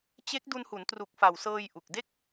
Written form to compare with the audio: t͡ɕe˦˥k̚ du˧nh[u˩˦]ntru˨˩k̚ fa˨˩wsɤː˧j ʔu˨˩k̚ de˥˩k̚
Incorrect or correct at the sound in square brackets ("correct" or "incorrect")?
correct